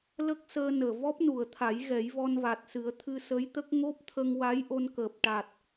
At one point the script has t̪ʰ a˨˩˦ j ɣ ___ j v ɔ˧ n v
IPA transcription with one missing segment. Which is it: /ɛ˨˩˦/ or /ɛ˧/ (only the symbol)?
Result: ɛ˨˩˦